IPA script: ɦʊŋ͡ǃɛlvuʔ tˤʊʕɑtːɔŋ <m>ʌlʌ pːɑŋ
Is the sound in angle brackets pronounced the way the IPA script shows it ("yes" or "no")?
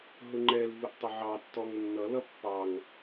no